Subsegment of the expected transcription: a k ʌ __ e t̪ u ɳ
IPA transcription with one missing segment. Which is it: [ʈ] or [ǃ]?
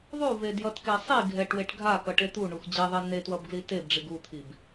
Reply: ʈ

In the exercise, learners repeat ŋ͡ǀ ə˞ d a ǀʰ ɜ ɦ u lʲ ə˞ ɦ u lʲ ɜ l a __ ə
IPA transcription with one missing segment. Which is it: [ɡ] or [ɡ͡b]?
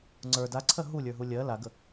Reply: ɡ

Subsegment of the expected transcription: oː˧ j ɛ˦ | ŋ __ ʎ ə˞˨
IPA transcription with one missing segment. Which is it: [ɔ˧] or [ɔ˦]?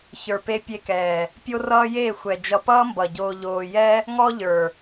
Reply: ɔ˦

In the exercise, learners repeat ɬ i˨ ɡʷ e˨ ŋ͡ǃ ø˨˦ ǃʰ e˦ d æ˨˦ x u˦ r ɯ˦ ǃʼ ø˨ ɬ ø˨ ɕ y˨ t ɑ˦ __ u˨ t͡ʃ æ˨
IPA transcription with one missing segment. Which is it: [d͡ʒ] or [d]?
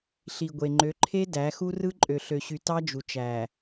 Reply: d͡ʒ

